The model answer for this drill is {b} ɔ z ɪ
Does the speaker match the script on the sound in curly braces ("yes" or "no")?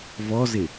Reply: no